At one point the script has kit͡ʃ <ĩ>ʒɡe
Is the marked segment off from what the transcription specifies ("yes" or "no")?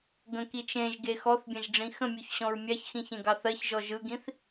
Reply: yes